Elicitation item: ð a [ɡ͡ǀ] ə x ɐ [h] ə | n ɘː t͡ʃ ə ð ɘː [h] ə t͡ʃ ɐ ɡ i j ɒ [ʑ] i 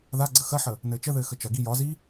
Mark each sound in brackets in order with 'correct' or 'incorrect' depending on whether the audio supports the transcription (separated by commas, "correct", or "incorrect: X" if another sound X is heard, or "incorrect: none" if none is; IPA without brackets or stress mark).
correct, incorrect: ħ, incorrect: x, incorrect: z